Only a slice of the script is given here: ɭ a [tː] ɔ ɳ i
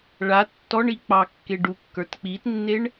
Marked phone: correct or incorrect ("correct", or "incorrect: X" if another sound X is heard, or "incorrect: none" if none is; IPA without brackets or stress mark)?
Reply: correct